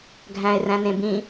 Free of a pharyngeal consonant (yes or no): yes